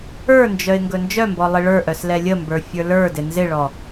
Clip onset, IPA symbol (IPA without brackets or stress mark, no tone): ə˞